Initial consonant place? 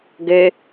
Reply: velar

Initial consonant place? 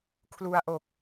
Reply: velar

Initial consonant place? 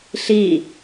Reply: alveolar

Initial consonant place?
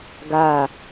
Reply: velar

